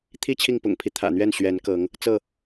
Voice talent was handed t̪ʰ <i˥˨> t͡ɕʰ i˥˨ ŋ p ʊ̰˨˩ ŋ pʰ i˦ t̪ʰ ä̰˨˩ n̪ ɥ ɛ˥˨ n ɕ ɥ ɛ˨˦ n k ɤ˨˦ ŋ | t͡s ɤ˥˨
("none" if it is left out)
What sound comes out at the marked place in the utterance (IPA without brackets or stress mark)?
i˦